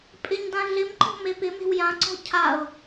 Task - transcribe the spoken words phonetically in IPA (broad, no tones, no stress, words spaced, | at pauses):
pʼɪɲdã ɮɪmǃɔ̤ mepɪme̤w jãǀɔ̤ cʰaʊ̯